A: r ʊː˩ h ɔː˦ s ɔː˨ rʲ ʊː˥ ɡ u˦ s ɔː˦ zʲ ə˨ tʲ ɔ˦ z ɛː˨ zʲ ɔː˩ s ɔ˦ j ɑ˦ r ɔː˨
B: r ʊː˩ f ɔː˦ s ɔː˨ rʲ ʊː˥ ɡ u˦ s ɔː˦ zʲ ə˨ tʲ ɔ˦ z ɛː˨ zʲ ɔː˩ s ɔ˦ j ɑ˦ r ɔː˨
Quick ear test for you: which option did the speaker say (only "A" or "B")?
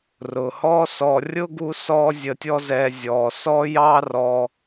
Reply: A